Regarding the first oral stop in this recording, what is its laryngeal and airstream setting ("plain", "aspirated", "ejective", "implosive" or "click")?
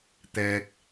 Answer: plain